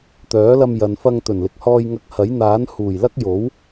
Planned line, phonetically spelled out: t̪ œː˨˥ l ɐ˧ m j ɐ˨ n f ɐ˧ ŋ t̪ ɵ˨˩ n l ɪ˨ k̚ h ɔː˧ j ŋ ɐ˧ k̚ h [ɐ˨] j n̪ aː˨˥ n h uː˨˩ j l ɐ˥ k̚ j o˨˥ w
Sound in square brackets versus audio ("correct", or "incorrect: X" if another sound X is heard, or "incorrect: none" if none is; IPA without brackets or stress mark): incorrect: ɐ˨˥